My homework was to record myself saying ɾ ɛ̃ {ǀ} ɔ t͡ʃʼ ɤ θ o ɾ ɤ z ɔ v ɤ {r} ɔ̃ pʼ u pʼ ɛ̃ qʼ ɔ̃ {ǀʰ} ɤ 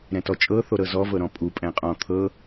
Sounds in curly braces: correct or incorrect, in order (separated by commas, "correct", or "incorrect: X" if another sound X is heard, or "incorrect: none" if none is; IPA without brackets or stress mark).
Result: incorrect: t, incorrect: ɾ, incorrect: t̪ʰ